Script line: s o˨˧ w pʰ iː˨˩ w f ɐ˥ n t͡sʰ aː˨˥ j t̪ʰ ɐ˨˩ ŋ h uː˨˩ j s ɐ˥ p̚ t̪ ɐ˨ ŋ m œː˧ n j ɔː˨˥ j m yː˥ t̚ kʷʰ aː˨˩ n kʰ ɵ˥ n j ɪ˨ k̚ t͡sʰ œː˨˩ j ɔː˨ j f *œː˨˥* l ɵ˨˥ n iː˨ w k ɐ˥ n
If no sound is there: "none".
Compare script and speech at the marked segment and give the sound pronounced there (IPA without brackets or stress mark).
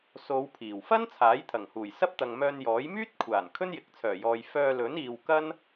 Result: œː˧